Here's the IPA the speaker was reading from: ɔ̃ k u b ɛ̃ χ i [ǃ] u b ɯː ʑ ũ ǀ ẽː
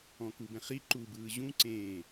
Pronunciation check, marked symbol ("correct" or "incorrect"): correct